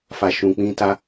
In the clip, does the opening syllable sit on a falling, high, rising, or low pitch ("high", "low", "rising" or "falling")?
high